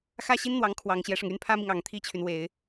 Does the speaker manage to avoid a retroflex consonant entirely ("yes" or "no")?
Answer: no